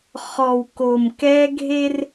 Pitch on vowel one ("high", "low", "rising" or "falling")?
low